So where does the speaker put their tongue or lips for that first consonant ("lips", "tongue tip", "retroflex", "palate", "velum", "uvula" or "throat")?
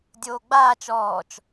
tongue tip